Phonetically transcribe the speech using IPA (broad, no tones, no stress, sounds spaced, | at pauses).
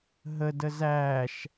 ɦ ə d ə z æː ʃ